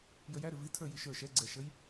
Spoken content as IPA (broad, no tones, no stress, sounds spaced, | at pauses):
j ə j æ ɾ ɪ v i tʰ ə˞ j i ʃ ə˞ ʃ ɛ ɡ͡ǀ ɛ ʃ ə j